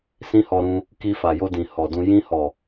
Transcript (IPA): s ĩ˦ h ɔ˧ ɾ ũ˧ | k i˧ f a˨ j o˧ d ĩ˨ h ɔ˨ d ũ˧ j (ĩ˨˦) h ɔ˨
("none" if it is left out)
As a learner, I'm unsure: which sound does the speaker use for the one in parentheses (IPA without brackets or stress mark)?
ĩ˧